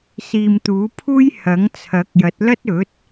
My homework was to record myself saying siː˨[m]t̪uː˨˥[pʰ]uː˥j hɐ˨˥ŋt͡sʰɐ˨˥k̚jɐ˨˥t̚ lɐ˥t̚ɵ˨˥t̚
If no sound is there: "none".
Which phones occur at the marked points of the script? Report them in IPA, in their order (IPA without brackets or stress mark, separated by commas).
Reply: m, pʰ